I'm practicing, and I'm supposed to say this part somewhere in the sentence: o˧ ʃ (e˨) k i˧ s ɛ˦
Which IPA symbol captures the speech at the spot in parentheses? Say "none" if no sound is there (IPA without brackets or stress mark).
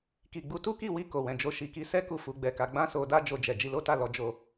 i˨